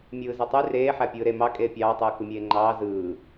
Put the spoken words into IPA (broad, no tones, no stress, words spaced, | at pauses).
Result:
mʲɯːzetˤy reː ħæpʲɯːɾe mɑ kʼeːpʲɑːtˤɯː kɯmʲeːŋ͡ǃɑː zɯː